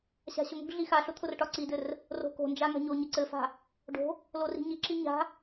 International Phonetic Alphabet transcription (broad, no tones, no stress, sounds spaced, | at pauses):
ɕ a̤ ɕ ʊ ŋ o̤ ɡ ɮ i x a ɬ ʊ t̪ʰ ʊ r ʈ ɒ ǀ i d ɘ r | r o̤ k o̤ n d͡ʒ a ŋ a̤ ɲ o ɲ ɘ ǀ ɘ f a̤ | ɖ o̤ | l o r i̤ ɲ i ǁ i ɲ a̤